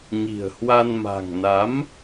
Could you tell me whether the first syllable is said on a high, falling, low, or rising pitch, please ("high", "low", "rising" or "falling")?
low